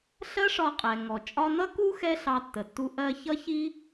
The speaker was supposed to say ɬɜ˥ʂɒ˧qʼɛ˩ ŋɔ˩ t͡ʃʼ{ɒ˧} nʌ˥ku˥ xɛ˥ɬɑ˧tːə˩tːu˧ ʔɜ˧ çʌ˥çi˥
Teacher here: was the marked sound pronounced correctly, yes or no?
yes